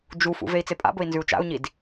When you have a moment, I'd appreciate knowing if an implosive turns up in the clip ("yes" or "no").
no